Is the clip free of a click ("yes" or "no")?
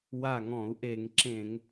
no